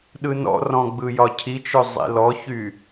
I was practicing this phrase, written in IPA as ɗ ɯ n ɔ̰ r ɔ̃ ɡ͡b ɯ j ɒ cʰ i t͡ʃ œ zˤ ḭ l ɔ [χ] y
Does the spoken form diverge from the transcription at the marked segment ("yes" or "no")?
yes